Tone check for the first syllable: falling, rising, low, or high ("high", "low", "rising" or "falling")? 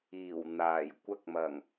low